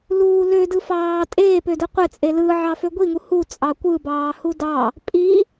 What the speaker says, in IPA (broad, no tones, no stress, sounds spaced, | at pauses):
l uː l ø d ɯ f ɑː tʼ eː p ø d ɯ qʷ e t͡sʼ e l ɯ ʕ ɑ f ø ɡʷ i ŋ u h u t͡sʼ ɑ kʷ ɯ b ɑː h u d ɑ | pʼ i